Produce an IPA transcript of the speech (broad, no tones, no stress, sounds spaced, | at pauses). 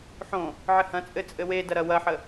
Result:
ħ õ | ʕ ɘ h ɐ̃ t͡sʼ ɘ t͡sʼ ɘ w e d ɐ ɾ ɐ w ɐ ħ ə